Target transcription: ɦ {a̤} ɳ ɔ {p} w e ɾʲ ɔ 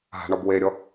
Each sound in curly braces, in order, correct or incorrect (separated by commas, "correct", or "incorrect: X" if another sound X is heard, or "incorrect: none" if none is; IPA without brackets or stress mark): correct, incorrect: b